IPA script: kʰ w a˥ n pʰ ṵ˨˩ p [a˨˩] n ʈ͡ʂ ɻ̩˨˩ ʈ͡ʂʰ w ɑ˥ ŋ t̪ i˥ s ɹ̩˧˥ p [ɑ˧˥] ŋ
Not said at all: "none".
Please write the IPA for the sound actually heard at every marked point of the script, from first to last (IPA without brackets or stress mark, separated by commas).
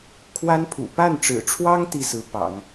a˥˩, ɑ̰˨˩˦